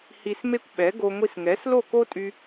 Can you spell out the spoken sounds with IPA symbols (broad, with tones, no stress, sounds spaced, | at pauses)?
h i˧ s m e˥ kʷ ɓ ɛ˩˥ ɡ o˧ ŋʷ i˧ s ŋ ɛ˩˥ s l o˥˩ k o˥ tʼ y˧